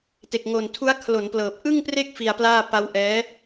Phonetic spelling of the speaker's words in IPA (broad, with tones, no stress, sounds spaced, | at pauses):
t e˨˩ k̚ ŋ o˨˩ n tʰ u˦˥ a̯ kʰ l o˩˦ n p l ɤː˨˩ p̚ ʔ ɯ˥˩ ŋ p r e˥˩ k̚ f i˧ a̯ p l aː˥˩ p a˦˥ w ʔ ɛː˦˥